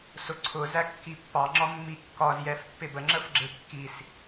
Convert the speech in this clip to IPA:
s ʊ ǀʰ ʊ z æ kː i pː ɑ ŋ͡ǁ ɒ mː i kː ɒ z j ɛ f pː ɪ b ə ŋ͡ǁ ə f ɡ͡ǁ ɪ kː i s

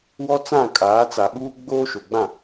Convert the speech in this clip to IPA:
w ɔ˦ t͡s ã˦˨ kʼ aː˨˦ t͡s a˨ ɓ uː˦ ɡ͡b oː˦ ʃ o˨ ɡ͡b ã˦˨

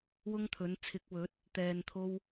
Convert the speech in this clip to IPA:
w ʊ˥ ŋ t̪ʰ ɵ˨˥ n t͡sʰ ɪ˨˥ k̚ w ɵ˨˥ t̚ | t̪ ɛː˧ n t̪ʰ o˥ w

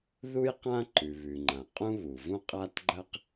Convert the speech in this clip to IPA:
ð u˥ j q ã˥ ǃ ʉ˩ β ʉ˩ ŋ͡ǃ ã˩ qʼ ũ˥ β u˩ v ũ˥ qʼ a˥ t ɡ͡ǃ ɐ˥ q

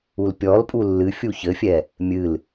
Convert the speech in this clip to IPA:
u l pʲ ɔ l pʼ u lː ɨ fʲ u ç ɘ fʲ ɛ | mʲ ɨ l

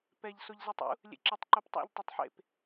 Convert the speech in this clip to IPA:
p ɛ ʎ s o ʎ z ɛ tˤ ṵ | lʲ ḛ ǁ e tˤ ǃ o p tˤ a̰ ʎ tˤ ɘ tˤ ħ ḛ p

